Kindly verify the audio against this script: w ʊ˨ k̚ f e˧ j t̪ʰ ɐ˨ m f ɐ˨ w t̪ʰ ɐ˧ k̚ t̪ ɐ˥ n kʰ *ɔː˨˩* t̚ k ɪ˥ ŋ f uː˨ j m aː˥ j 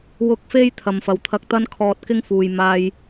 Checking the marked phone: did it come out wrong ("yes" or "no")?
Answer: yes